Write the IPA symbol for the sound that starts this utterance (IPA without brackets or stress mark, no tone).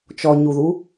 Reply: t͡ʃ